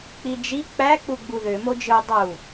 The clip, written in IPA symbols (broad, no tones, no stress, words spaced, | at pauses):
k͡pid͡ʒi k͡pæ k͡puɡ͡buðø mod͡ʒɯ dˤu